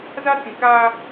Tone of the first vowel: high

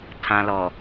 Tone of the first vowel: low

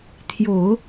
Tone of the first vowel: low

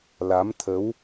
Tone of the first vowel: rising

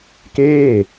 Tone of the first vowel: falling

